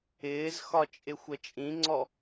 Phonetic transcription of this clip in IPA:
ɪːzxɒ t͡ʃʼɪxʷət͡ʃʼĩŋ͡ǀɔ

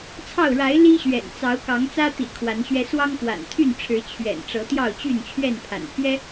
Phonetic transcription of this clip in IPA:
t͡sʰɑ˥˨ʊ̯ ɻa˨˦ɪ̯ li˦ɕɥɛ̰˨˩n t͡sɑ˨˦ʊ̯kɑ˨˦ŋt͡sä˦ t̪ḭ˨˩ kʰwa˨˦nɕɥɛ˦ swɑ˦ŋkwa̰˨˩nt̪ʰy˥˨nʈ͡ʂʰɻ̩˨˦ t͡ɕʰɥɛ̰˨˩n ʈ͡ʂɤ˨˦t̪jɑ˥˨ʊ̯t͡ɕy˥˨n t͡ɕʰɥɛ˥˨npʰa̰˨˩npʰɥɛ˦

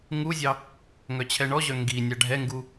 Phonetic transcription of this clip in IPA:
ŋuzʲɑ | ŋœt͡ɕʰɛɳɔʑœ ŋɡi nʲaɖʱɛŋɡu

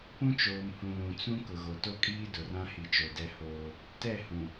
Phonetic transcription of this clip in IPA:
pũ˦t͡ʃoː˨mhũ˨ lũ˨t͡sũ˦ kʊ˨ɣo˨to˦kʼiː˦ dʊ˨rã˦hi˨t͡ʃo˨ dɛ˦hoː˦ | tɛ˦˨hũ˨

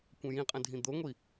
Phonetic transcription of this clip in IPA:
kʷə̃jĩqʼə̃ dʱĩd̪oŋʷi

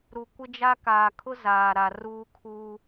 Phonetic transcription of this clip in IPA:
ɾu˨kʷɪ˦d͡ʒa˦ kaː˨kʰʊ˦ zaː˨ɾa˨ruː˦ kʰuː˦

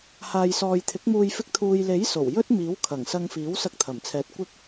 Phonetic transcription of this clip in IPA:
haː˨jsɔː˨jt̪ʰɪ˨˥k̚muː˧j fɪ˧k̚t̪ʰuː˨j le˨˥j so˨˩w jɵ˥t̚miː˨˥wkʰɐ˨˩ŋsɐ˧ŋ fiː˨˥wsɐ˧k̚t̪ʰɐ˨˩mt͡sʰɛː˨˥t̚ kʷɪ˥k̚

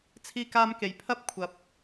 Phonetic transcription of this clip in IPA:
t͡sʰiː˧kaː˧mke˨˩jpʰɐ˥p̚ kʷʰɐ˨p̚

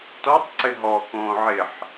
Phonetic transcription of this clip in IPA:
tɔtˤǀɪ ɦɔkõː ʕɪħ

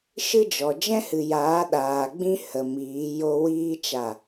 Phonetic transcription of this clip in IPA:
ʃɨ˦d͡ʒɔ˨ d͡ʒɛ̃˦hɨ˨ jaː˨˦ɗaː˨ɡ͡bĩ˦ hə˨ miː˨˦jo˦ wiː˦ t͡ʃa˦˨

